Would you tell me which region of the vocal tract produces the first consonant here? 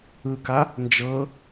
velum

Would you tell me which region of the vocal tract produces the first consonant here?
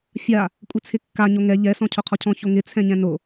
lips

